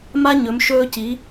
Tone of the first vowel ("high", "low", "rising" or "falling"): high